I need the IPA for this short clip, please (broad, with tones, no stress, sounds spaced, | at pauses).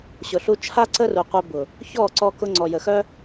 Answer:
ɕ ʊ˨ ɬ u˧ t͡ʃʰ a˦ ǀ ə˦ r u˨ qʷ œ˧ b ʊ˨ | ç ɔ˦˨ ǀ ɔ˧ k ʊ˧ ŋ͡ǀ ɔ˨ j ə˨ x œ˦